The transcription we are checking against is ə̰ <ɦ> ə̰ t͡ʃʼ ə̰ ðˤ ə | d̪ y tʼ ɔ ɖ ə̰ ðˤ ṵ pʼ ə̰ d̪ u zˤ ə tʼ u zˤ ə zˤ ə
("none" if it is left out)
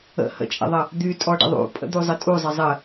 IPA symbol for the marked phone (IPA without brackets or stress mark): h